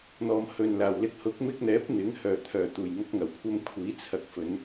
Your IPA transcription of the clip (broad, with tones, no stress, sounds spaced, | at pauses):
n̪ ɔː˨ m h ɵ˨ n l aː˨˩ w l ɪ˧ k̚ h ʊ˨˥ k̚ m ɪ˧ k̚ n̪ ɛː˨˥ p̚ n̪ ɪ˨˥ ŋ h œː˨˩ t̪ʰ œː˨˩ t̪ uː˨˩ j ŋ ɐ˧ k̚ ŋ ɐ˨˩ w kʷʰ ɐ˧ m kʷʰ iː˨˥ t͡sʰ ɐ˨˥ k̚ f ɵ˨˧ n